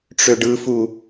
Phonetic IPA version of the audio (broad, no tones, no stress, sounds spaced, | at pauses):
ʈ͡ʂ ø ɖ ɯ f u